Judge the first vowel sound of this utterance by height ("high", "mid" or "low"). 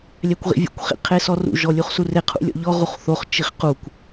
low